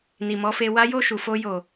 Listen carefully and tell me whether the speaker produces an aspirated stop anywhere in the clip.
no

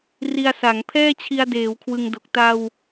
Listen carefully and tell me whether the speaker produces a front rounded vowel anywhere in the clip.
no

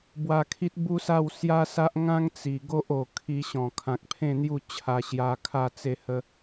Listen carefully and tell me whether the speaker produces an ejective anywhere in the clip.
no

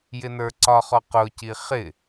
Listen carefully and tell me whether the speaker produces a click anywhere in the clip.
yes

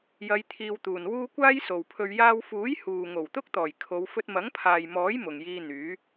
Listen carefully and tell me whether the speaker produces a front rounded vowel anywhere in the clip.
yes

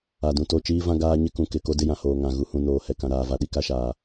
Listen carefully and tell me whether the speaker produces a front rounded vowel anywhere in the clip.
no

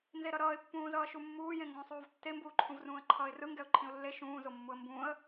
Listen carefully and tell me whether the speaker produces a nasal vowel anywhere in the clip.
yes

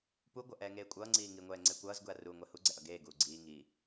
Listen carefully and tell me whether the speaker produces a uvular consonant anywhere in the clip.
no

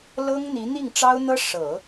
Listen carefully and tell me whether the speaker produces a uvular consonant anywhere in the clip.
no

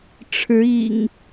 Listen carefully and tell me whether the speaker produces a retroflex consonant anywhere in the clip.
yes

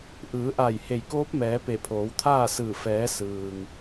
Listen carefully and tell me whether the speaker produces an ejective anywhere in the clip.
no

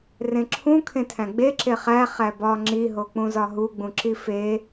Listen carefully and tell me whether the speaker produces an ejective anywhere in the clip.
no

